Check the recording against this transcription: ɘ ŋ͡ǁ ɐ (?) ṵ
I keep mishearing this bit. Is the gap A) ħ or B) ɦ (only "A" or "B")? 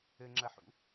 A